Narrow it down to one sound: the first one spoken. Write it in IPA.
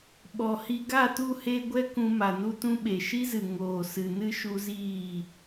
ɓ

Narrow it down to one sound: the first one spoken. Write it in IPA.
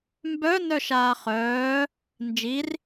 m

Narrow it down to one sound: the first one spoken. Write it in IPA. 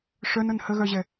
ʂ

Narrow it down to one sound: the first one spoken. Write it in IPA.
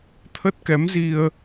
t̪ʰ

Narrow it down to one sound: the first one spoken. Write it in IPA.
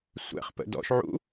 sʷ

